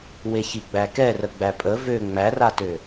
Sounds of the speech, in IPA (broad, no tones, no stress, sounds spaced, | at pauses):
w e ç i ɡ͡b æ k ɛ r ə ɡ͡b æ pʼ ə v ø ŋ͡m æ r a t ø